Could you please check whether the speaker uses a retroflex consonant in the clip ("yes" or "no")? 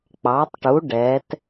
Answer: yes